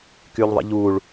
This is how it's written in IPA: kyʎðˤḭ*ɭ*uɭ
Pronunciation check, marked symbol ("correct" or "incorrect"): incorrect